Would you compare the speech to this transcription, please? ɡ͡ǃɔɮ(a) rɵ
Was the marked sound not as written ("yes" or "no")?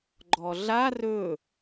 no